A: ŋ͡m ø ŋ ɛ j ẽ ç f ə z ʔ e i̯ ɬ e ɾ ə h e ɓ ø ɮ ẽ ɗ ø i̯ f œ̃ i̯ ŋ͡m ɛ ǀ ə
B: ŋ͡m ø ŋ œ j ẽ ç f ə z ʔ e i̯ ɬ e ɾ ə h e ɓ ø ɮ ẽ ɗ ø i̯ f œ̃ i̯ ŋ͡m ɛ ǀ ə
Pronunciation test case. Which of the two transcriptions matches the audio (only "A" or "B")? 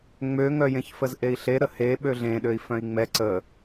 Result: B